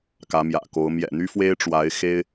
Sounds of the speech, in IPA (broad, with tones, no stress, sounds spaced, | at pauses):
k ä˧˥ m j ä̰˨˩ k o˧˥ ʊ̯ m j ɛ̰˨˩ n̪ y˥ f w e˥ ɪ̯ ʈ͡ʂ w a˧˥ ɪ̯ x e˥ ɪ̯